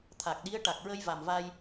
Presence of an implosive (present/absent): present